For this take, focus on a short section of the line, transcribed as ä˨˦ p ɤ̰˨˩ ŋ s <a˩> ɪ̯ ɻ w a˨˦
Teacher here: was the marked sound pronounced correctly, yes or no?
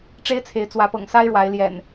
no